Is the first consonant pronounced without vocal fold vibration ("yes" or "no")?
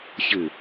yes